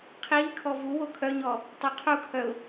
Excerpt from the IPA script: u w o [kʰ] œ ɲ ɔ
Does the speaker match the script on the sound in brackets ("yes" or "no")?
yes